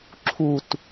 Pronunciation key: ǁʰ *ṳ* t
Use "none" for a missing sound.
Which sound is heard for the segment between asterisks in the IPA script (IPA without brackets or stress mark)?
u